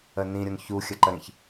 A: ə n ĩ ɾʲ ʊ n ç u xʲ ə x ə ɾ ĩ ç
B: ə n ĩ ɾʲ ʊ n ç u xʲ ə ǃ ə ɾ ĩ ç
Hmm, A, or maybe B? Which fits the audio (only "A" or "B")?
B